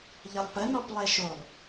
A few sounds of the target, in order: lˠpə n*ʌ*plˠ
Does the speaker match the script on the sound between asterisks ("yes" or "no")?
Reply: no